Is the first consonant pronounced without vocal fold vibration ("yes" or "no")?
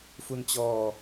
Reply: yes